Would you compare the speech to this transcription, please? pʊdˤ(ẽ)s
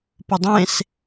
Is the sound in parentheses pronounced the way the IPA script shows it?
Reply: yes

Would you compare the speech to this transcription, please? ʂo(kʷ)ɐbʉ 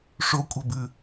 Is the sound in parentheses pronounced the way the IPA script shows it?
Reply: no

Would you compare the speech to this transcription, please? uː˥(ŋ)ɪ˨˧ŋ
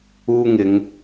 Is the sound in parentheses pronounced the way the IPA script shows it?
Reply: yes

